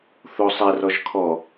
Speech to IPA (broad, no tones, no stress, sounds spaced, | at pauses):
θ o sˤ ɛ r ɔ ʒ kʰ ɔ